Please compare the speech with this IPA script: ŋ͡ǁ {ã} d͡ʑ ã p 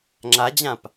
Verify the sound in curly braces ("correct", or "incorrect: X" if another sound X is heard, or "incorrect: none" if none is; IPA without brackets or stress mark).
incorrect: a